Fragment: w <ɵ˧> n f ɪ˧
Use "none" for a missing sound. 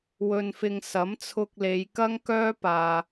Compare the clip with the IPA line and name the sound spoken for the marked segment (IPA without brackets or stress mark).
ɵ˧